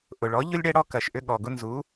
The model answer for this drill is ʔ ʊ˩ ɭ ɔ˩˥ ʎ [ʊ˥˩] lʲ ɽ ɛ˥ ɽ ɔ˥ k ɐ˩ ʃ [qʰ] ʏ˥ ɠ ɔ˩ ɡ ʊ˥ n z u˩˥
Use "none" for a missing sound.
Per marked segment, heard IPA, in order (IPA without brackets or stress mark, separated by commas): ʊ˥, ʔ